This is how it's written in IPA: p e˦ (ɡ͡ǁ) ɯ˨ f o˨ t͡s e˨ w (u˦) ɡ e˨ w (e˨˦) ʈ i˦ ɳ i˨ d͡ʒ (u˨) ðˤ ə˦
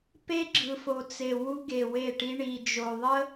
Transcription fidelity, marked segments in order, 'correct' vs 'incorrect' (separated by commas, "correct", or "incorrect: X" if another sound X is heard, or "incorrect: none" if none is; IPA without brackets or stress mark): correct, correct, incorrect: e˦˨, incorrect: o˨